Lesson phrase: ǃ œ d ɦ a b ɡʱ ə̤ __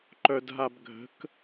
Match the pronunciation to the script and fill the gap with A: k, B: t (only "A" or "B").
A